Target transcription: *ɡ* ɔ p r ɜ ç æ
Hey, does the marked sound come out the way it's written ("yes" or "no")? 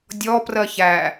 no